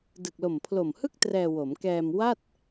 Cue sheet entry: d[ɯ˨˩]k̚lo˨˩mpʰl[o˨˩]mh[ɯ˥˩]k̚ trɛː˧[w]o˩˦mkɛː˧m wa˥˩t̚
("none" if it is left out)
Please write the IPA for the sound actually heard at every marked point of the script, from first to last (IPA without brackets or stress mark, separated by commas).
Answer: ɯ˨˩, o˨˩, ɯ˥˩, w